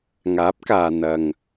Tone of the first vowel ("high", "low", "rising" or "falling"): rising